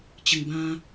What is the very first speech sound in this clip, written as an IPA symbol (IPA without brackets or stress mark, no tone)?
t͡ɕ